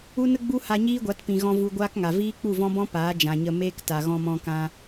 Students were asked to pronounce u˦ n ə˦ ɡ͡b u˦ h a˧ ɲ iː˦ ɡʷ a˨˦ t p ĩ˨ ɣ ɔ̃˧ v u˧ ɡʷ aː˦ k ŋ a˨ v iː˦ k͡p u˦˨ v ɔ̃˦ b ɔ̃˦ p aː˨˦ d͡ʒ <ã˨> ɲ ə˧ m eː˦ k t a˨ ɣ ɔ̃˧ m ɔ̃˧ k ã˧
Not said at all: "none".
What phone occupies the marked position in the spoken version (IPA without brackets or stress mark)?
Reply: ã˨